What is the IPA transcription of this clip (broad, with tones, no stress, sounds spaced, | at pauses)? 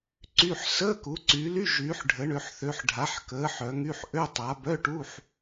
ǀ y˧˥˧ ħ s əː˧˥˧ k u˨˦ ǀ yː˨˦ l y˧˥˧ ʒ yː˨˦ ħ ɖʱ ə˨˦ ɳ ø˨˦ ħ θ ø˨˦ ħ ɖʱ a˨˦ ħ k əː˨˦ ħ œ˨˦ ŋ y˧˥˧ ħ ʔ ø˧˥˧ tˤ a˨˦ b œ˧˥˧ ʈ u˧˥˧ ħ